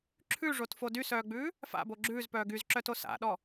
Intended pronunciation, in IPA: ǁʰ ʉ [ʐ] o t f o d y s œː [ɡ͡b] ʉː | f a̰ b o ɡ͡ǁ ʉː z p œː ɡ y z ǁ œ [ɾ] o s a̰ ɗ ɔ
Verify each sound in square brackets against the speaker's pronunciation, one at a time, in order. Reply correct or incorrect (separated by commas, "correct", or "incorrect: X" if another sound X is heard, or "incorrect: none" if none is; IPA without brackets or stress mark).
correct, correct, incorrect: t